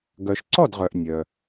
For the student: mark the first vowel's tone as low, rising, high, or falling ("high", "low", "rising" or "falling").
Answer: low